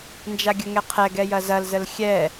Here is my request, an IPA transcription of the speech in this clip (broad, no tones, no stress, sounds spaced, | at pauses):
n d͡ʒ a ɡʲ ə ŋ ɛ qʰ ɛ ɡ ɛ j ɐ z ɐ l z ə l xʲ ɛ